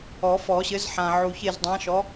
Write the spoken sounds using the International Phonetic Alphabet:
ɔ˨˩˦ f ɔ˨˩˦ ɕ ɘ˨˥ z ħ ã˨ ʕ u˨ ç e˦˨ z dˤ ã˨˥ ʃ ɔ˨˥

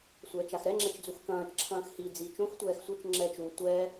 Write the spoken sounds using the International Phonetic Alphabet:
sʷ ɛː t͡ʃ a x ɾ ɛ ŋ͡ǁ ɛ t͡ʃ d͡z u x k ɐ̃ː t͡ʃ ǁʰ ɐ̃ː x h i d͡z iː t͡ʃ õ x tʷ ɛː x sʷ ɘ t͡ʃ ŋ͡ǁ ɛː t͡ʃ u tʷ ɛ

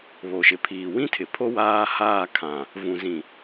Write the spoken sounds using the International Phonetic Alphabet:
β o˨ ʃ ɪ˨ pʰ iː˨ w ĩ˦ tʰ ɪ˨ pʰ o˦ w aː˦ h aː˦˨ kʰ ã˨ | v ũ˨ z ĩ˨

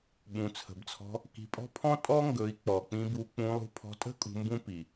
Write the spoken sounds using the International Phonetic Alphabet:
ɓ ũ˨ t͡sʰ ə̤˨ b t͡sʰ ɔ̤˧ | k i̤˧ pʼ ɔ̤˦ pʰ ɔ̃˦ tʼ ɔ˦ ŋ ɡ ɵ˨˦ i̯ k͡p ɔ˨ k͡p ĩ˧ b u˧ k͡p ũ˧ lˠ ṳ˧ pʰ ɔ̤˧ tʼ ə̤˦ kʼ ṳ˧ m b ũ˦ p i˨

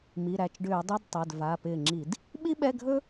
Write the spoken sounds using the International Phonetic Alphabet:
m i˩˧˩ ɾ æ˧˩ t͡ʃ ɖ ʏː˧˩˧ dˤ ɵ˧˥˧ d tˤ ɛ˩˧˩ d v a˩˧˩ p ɪː˧˩ ŋ͡ǁ i˧˩˧ d | ɓ i˥ ɓ ɛ˧˥˧ ɡʱ ɵ˥

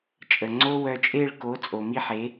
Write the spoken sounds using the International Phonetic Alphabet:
t͡ʃʼ ə˨ ŋ͡ǀ o˦ w œ˧ t͡ʃʼ e˦˨ ɭ k o˨˦ t͡sʼ o˨ m i˦ ħ e˨˦

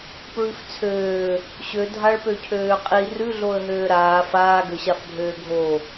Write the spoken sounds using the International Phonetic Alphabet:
p ɹ ʉ f t͡sʰ øː | ɕ ø dʱ a ɭ p ø cʰ øː qʼ i r ʉ ɮ o ə̯ ɦ øː ɾ aː f aː ɡ ø ɕ a f bʱ øː ɡʱ o

